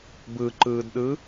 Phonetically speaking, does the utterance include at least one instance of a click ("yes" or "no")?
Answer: yes